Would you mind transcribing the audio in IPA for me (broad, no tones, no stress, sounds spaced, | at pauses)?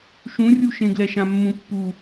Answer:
ʃ ũ rʲ u ʃ ẽ ɡ l ɛ ʃ ã mː ũ pː u